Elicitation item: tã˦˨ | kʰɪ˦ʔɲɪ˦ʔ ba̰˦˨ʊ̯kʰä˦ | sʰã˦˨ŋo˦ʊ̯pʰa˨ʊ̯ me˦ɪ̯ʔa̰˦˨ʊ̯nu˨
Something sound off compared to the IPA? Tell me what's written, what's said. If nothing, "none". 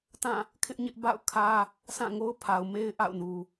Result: none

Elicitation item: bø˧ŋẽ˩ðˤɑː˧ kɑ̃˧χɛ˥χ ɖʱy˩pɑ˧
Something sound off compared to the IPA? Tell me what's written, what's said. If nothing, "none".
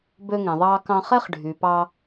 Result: none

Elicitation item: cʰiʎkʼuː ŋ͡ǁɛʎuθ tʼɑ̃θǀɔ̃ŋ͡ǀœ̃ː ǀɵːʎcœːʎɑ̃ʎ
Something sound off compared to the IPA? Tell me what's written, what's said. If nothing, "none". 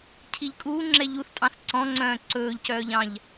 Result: none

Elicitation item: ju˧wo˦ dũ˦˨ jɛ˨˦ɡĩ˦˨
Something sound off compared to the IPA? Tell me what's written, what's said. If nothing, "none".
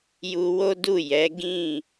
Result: ũ˦˨ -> u˦˨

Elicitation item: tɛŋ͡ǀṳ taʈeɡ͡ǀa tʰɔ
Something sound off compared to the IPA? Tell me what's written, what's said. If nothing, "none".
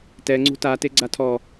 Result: ʈ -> t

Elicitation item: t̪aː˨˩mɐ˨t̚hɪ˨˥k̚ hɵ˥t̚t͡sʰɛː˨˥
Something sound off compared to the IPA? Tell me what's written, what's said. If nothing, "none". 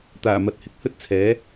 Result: none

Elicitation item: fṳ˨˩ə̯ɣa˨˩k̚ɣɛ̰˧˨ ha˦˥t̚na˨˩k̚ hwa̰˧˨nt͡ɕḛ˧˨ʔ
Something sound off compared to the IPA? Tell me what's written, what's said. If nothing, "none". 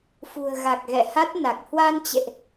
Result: a̰˧˨ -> a˧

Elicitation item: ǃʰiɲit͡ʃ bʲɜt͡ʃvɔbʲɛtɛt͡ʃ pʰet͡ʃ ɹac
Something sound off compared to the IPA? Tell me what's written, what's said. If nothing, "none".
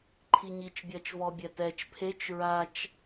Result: c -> t͡ʃ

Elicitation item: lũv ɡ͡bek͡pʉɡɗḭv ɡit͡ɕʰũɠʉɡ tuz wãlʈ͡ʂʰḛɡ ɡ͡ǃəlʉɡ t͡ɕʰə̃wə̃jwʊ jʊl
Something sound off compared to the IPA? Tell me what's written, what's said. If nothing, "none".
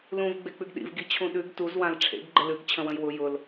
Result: ɠ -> ɗ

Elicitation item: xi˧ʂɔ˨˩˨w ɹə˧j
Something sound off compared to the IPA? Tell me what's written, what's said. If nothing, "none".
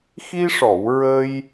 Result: none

